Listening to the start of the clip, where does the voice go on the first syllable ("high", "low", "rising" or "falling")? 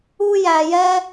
high